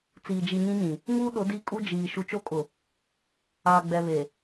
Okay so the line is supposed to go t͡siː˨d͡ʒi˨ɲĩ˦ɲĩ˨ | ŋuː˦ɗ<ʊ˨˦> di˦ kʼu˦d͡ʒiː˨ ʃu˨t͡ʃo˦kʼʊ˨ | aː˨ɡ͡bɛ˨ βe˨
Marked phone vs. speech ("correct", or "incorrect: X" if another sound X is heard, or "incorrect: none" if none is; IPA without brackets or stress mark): correct